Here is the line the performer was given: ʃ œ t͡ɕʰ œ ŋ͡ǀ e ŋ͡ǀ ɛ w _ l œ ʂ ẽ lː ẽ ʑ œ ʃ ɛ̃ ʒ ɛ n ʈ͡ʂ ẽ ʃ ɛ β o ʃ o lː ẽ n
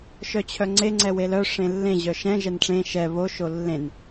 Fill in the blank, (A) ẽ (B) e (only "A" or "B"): B